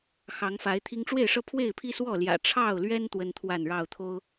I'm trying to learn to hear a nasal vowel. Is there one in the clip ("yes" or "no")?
no